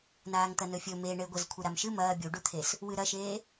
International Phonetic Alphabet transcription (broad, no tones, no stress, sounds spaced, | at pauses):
n aː ŋ t̪ ɐ n ɵ fʲ ɵ m e ɳ e ɡʷ ɐ z kʷʰ ɨ ɾ a m ʃ ɨ m ɐː bʲ u ɖ u t̪ʰ e s | w ɨ ɾ ɐ ʃ eː